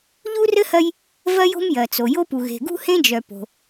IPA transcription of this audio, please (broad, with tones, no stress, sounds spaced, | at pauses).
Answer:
ʎ u˥ r ɘ˥ h ɜ˥ j | v ɜ˥ j o̤˥ m j ɜ˩ t͡s o˩ j o˥ p u˩ ɣ e̤˩ ɡ ṳ˥ h ẽ˥ d͡ʒ œ˩ p o̤˩